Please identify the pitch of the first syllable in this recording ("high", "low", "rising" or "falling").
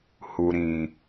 low